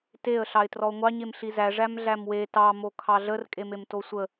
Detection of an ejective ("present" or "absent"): present